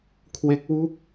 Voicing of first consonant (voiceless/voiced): voiceless